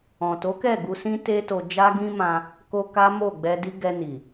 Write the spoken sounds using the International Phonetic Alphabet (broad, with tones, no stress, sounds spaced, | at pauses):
ɔ̃˨ t o˨˦ k ɛ˦˨ ɡ u˧ s ĩ˦ t e˦ t o˧ d͡ʒ a˦ ɡ ĩ˦ m ã˧ | k o˧ k a˦ m o˦˨ ɡ͡b ɛ˧ d i˦ ɡ ɛ˧ n i˨